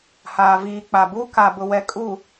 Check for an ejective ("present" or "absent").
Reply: present